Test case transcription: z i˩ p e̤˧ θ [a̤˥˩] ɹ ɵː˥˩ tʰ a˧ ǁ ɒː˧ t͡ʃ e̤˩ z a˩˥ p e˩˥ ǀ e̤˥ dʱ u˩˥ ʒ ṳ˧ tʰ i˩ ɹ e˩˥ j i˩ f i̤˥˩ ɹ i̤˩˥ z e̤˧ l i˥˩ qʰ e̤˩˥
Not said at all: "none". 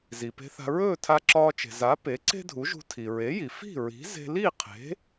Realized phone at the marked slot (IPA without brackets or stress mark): a̤˧